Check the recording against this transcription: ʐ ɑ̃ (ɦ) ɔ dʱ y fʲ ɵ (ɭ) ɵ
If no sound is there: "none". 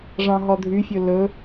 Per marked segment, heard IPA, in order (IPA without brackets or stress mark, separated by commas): ɦ, l